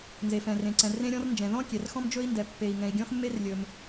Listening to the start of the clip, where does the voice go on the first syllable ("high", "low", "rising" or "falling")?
low